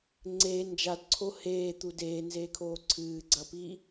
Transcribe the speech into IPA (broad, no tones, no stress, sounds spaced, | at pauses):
ŋ͡ǀ e n d͡ʒ a d ǀʰ o h eː t̪ u d eː n z eː kʰ oː ǀʰ ɨː ɡ͡ǀ ɐ p i